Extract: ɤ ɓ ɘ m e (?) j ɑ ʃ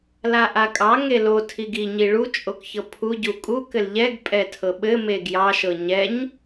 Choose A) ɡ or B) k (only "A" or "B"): A